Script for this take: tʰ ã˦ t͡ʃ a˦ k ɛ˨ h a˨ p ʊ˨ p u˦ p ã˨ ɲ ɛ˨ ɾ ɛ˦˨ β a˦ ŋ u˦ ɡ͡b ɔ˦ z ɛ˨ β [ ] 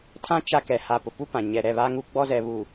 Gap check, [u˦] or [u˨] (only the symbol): u˨